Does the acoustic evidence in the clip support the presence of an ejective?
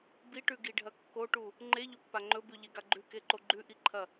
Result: no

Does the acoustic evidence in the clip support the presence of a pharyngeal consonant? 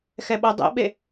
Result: no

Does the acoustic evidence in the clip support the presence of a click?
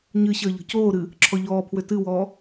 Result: yes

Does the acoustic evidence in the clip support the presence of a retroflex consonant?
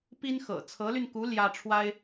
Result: yes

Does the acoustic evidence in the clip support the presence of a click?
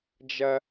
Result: no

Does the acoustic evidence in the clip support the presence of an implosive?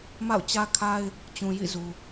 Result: no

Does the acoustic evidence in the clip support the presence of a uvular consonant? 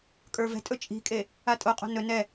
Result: yes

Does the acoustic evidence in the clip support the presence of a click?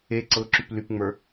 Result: yes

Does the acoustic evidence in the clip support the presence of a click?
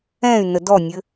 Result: no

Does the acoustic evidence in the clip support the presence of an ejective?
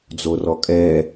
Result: yes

